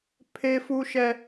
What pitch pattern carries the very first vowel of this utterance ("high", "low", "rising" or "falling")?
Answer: high